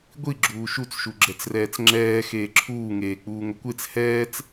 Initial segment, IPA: ɡʷ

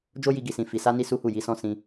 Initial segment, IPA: d͡ʒ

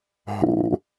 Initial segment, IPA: ɦ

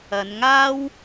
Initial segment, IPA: ɐ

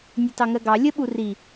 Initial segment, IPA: nʲ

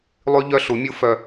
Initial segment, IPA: lˠ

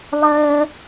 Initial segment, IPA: lˠ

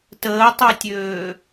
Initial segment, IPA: t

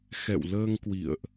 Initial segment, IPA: x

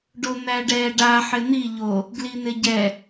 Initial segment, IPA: ɖ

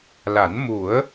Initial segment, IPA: l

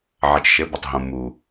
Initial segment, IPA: ʕ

